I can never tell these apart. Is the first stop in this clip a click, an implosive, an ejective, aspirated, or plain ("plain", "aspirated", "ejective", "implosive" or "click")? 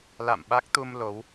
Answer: implosive